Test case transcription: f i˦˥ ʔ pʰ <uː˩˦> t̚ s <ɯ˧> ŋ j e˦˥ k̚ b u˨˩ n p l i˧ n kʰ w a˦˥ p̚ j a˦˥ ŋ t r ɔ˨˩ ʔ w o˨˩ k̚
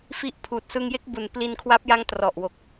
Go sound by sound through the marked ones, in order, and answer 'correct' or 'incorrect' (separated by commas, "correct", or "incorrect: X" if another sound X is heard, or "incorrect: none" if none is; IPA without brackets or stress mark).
incorrect: uː˨˩, correct